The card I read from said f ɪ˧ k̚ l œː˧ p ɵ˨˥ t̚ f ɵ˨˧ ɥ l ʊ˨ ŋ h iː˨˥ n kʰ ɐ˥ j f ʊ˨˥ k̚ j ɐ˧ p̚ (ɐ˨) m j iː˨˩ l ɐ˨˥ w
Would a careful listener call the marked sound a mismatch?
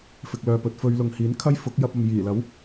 no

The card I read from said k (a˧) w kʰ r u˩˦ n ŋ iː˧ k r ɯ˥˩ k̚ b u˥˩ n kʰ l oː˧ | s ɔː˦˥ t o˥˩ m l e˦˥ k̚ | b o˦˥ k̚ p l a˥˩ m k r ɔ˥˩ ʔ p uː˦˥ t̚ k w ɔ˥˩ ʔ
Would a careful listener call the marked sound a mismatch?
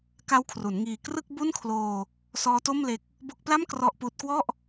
yes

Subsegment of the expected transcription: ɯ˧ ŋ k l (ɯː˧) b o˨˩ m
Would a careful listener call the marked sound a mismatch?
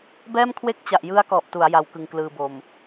no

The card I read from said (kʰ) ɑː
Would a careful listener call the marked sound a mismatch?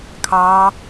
no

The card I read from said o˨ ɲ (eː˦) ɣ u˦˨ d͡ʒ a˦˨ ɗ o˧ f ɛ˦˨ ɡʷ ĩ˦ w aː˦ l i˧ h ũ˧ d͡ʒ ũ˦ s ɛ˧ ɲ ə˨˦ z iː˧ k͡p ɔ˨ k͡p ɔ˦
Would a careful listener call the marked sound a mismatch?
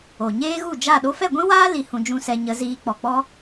no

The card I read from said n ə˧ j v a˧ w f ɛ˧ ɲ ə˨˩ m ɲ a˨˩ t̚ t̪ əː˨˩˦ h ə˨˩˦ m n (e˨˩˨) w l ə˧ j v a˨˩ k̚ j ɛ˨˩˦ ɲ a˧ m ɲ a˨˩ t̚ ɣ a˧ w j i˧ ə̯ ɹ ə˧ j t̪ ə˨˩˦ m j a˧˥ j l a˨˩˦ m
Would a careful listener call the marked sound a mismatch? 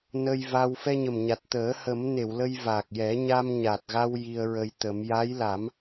no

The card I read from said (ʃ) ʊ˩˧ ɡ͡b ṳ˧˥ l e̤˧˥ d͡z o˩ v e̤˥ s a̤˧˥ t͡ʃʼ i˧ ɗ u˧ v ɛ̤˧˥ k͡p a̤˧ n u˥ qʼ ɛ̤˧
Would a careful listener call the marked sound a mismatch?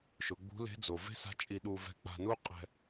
no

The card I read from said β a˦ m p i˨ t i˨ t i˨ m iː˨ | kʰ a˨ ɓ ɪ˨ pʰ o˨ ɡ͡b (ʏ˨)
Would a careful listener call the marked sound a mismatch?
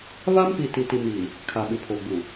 yes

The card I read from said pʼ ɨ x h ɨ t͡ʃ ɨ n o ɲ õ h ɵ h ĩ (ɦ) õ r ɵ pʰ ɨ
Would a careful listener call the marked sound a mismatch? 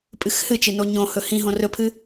no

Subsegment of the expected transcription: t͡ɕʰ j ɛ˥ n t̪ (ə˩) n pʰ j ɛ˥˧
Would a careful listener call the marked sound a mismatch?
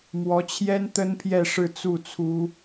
yes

